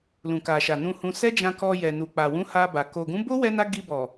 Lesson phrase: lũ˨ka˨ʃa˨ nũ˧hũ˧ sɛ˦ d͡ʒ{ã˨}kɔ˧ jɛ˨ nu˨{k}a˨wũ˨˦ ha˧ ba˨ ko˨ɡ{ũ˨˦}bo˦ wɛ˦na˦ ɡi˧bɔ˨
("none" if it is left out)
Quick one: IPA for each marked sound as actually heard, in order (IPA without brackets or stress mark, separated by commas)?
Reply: ã˧, k͡p, ũ˨˦